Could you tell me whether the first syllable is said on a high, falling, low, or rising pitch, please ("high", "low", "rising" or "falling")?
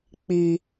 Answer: low